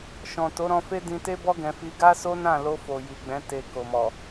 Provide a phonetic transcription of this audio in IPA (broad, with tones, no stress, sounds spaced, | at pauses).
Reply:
ʃ ɔ̃˨ t o˨˦ ɾ ɔ̃˧ f e˦ d ĩ˧ t e˦ b ɔ˦ ɡ ɛ̃˧ f i˦ ɡ a˦ s o˦ n ã˦˨ l o˧ f o˨ j i˨ ɡ͡b ɛ̃˨˦ t e˧ k o˨ m ɔ˨